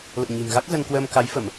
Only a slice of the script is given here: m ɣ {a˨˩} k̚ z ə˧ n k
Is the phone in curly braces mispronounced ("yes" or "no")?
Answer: yes